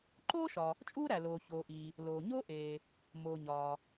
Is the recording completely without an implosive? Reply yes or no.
yes